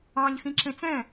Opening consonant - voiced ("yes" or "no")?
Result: yes